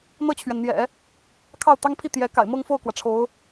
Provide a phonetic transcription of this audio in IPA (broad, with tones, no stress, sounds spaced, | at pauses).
n̪ ɤ˥˩ t͡ɕʰ ɥ ɛ˩ n n̪ j ɛ̰˨˩˦ | kʰ ɑ˥˩ ʊ̯ t̪ ɑ˥ ŋ pʰ i˥˩ t̪ j ɛ˧˥ k a̰˨˩ ɪ̯ m ɤ˥˧ ŋ f o˥˩ ʊ̯ k w ä˩ ʈ͡ʂʰ o˧˥ ʊ̯